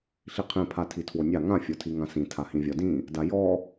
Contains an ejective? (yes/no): no